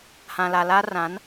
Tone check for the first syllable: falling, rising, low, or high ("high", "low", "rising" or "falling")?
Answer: low